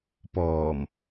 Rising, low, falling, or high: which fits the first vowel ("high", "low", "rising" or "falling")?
low